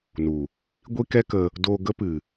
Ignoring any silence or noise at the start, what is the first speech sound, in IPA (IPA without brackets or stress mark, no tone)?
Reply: n